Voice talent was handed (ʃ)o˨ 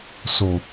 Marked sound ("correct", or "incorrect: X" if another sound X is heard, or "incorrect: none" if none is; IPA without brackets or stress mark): incorrect: s